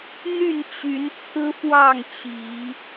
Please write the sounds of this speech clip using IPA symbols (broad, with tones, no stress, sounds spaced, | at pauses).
n̪ y˥˨ n t͡ɕ y˨˦ n t͡sʰ ɹ̩˦ f w ɑ˥˨ ŋ t͡ɕ i˨˦